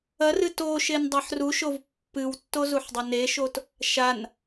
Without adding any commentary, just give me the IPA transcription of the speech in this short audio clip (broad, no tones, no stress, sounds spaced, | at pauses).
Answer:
ɐ r ɨ t o ʃ e n dˤ ɐ ħ r u ʃ o v pː ɨ w tː o z u ħ dˤ ɐ n e ʃ o t | ʃ a n